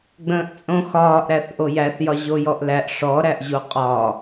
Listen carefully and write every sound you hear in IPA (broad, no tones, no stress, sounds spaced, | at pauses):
ɡ͡b ə̃ː ʔ t͡sʼ õ x ɒː ʔ ɾ æ θ ʔ o j æ θ j ɒ ʑ o j ɔ ʔ l æ ʔ ʂ ɔ ɾ æ ʔ ʑ o qʼ ɒ